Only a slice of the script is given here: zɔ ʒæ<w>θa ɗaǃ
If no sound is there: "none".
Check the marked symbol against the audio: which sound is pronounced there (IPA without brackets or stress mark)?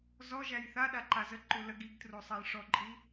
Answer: j